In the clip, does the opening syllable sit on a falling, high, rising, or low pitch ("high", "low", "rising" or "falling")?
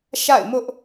falling